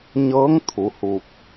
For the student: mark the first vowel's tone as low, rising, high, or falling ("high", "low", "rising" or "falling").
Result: rising